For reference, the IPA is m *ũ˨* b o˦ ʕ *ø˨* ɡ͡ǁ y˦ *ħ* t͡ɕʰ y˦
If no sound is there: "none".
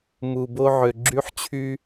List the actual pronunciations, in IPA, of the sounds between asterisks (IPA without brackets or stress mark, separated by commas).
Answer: u˨, ø˨, ħ